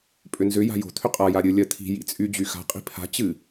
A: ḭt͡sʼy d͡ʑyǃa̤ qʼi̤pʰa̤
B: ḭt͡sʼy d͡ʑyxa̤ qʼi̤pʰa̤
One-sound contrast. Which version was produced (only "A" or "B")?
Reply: B